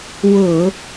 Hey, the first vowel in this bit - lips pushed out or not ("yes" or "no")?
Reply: yes